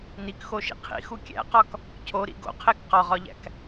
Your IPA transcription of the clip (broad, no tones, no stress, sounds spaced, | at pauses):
n i k x o ʃ ḭ qʰ ḭ x u kʲ æ̰ q ɒ k | cʰ o ɾ ḭ ɡ o̰ qʰ e k q ɒ ʁ ɒ ʎ æ̰ k